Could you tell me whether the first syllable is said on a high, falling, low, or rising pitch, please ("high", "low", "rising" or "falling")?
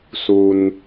low